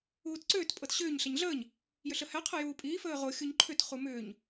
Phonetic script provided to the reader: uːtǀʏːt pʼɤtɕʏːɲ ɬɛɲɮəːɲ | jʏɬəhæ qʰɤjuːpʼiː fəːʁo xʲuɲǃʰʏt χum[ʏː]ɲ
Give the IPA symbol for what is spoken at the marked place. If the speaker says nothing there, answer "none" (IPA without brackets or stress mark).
ʏː